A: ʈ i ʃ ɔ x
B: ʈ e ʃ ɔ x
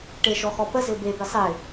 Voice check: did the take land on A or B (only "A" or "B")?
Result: B